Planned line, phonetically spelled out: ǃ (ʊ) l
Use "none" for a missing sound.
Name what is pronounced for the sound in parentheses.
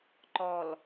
ɔ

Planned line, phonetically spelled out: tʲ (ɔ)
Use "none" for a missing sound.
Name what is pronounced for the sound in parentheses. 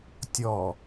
ɔ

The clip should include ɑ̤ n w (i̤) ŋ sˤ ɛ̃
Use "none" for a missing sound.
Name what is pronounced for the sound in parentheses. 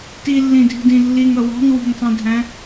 i̤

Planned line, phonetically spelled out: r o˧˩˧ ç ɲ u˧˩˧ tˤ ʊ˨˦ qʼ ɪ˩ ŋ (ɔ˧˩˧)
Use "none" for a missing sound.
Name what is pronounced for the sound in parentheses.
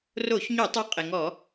ɔ˧˩˧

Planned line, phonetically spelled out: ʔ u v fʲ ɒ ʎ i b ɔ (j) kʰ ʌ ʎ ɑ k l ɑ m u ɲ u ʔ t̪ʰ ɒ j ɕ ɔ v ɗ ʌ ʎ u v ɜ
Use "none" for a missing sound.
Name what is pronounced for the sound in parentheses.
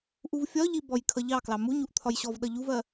j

